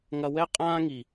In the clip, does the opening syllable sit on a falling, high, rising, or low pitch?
high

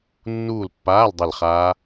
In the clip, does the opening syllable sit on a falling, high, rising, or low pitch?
falling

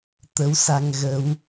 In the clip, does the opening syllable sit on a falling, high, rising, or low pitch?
rising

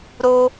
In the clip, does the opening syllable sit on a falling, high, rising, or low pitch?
high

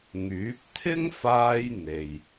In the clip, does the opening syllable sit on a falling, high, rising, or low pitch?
rising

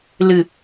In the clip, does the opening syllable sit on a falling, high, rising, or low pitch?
falling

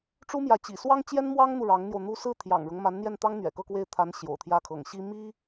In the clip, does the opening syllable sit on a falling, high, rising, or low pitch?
high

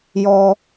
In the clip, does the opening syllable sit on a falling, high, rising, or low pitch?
high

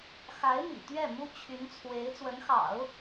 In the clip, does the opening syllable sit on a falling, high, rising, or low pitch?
rising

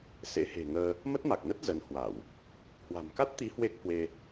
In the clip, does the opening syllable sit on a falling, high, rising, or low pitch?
rising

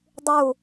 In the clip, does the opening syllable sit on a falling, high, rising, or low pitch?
falling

